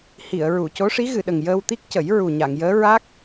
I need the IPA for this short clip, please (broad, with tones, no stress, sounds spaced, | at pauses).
h i˨˩˨ ə̯ ɹ u˨˩˨ c o˧˥ ʂ i˧˥ ɣ ɨ˨˩˨ ɗ ə˨˩ ŋ j əː˧ w t̪ i˦˥ k̚ c ə˨˩˦ j ɹ u˨˩ ɲ a˨˩˨ ŋ j əː˧˥ ɹ a˦˥ k̚